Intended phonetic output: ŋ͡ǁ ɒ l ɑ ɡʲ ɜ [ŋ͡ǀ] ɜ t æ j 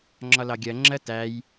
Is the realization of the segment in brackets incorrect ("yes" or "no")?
yes